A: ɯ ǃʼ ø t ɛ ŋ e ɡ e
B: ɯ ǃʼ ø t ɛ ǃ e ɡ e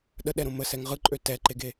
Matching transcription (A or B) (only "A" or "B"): B